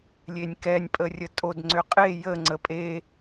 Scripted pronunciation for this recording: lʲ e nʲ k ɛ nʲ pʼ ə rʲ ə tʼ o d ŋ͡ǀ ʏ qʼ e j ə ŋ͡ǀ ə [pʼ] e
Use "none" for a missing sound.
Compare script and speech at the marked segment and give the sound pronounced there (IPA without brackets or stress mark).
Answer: pʼ